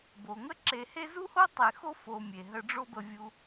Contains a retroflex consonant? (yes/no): yes